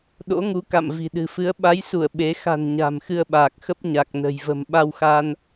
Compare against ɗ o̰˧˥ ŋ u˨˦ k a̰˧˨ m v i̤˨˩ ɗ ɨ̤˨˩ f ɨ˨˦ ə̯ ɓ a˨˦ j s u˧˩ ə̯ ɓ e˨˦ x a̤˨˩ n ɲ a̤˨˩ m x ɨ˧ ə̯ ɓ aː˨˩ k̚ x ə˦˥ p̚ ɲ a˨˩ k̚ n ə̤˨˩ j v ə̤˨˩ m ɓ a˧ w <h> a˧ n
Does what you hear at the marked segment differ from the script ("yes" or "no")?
yes